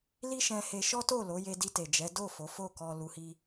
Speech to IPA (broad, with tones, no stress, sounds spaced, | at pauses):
l i˦ ʃ ɛ̃˧ h e˧ ʃ ɔ˦ t o˦˨ l o˨˦ j e˧ d i˧ t e˨ d͡ʒ ɛ˨˦ d o˦˨ f o˨˦ f o˦˨ k ɔ˧ l u˧ h i˦